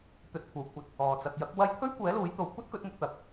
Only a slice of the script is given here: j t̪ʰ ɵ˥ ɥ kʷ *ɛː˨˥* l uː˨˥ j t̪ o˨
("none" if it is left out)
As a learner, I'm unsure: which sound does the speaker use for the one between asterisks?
ɛː˨˥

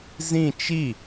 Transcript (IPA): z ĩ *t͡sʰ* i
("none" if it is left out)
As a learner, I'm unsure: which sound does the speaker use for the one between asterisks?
t͡ʃ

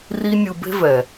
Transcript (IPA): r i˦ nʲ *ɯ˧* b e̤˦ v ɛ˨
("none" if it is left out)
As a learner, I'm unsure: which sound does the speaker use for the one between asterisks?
ɯ˧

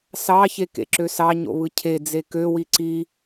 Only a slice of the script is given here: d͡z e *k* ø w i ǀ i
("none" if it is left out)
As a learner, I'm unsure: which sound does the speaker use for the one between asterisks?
k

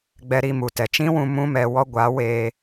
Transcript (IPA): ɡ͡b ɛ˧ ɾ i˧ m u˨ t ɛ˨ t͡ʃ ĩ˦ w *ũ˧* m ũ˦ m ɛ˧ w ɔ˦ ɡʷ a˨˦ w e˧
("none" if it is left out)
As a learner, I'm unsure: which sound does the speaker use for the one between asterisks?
ũ˧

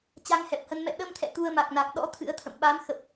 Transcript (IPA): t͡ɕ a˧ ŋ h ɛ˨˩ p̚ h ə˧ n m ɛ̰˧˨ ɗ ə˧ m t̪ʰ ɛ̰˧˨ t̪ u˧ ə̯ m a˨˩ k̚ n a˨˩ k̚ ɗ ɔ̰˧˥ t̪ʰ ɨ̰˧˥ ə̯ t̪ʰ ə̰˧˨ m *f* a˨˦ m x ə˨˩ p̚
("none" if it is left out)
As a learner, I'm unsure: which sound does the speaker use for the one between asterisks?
ɓ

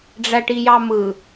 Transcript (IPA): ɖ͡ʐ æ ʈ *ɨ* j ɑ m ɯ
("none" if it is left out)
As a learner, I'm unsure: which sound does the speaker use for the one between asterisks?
i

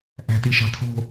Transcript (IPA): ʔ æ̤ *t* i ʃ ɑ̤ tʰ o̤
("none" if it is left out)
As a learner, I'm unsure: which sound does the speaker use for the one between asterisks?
t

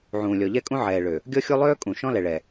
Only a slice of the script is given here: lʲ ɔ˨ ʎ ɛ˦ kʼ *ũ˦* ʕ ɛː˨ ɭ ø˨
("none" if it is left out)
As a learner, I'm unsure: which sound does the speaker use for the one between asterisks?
ũ˦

